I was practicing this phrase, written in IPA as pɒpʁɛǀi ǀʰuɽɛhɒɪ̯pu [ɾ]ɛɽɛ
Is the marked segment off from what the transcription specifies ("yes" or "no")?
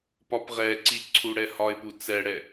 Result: yes